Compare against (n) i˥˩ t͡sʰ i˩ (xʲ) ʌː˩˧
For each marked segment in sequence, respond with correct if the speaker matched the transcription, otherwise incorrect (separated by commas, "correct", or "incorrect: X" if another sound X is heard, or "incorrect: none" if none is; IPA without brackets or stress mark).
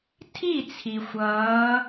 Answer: incorrect: tʰ, incorrect: xʷ